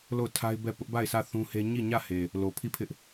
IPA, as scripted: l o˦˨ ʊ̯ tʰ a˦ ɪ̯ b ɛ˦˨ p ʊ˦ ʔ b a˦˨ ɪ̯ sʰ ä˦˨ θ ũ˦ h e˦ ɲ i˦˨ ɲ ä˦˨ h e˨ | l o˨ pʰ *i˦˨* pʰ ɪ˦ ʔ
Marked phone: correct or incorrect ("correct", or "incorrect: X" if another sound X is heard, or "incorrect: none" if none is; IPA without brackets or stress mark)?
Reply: correct